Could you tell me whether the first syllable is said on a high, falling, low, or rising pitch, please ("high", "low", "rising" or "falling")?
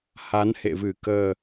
rising